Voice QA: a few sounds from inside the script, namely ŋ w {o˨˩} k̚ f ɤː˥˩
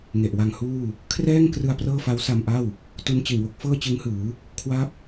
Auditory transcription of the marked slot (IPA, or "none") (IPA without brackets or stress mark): o˦˥